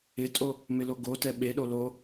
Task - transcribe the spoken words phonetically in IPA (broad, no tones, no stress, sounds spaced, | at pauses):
ɪ tʼ o | m ɪ l o ɡ o t ɛ ɓ e ɗ o l o